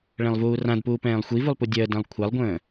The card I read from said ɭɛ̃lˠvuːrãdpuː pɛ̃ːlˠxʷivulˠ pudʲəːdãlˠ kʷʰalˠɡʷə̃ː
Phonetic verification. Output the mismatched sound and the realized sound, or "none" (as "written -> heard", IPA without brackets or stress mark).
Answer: none